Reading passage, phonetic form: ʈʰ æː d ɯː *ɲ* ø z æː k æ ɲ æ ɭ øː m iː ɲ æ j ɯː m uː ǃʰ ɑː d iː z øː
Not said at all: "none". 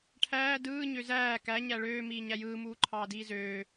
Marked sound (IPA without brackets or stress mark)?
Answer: ɲ